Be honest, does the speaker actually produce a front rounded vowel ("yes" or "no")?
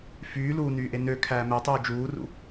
yes